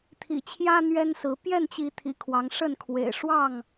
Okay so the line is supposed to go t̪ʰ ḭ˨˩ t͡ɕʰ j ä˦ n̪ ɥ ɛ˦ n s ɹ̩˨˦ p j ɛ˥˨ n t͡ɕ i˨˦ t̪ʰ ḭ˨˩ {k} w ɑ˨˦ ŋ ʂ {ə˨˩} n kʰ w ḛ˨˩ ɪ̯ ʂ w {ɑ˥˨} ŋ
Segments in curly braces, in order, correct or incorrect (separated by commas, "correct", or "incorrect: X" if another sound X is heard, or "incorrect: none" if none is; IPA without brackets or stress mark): incorrect: kʰ, incorrect: ə˥˨, correct